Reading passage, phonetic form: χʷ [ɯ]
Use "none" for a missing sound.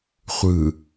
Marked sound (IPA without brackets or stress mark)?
ɯ